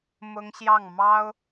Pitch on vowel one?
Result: high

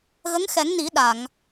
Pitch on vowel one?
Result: rising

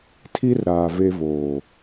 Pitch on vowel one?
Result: high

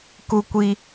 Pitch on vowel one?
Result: high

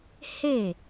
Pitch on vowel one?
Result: falling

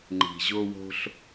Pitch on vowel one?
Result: low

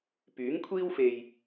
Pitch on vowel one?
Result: rising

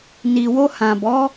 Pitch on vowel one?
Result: low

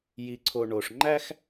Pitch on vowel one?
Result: low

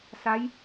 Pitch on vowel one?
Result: rising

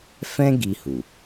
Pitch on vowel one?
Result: high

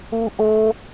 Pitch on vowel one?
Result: high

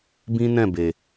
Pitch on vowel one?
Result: high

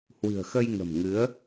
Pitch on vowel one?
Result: low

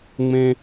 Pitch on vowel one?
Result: high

